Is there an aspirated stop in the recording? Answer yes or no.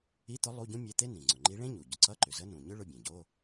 no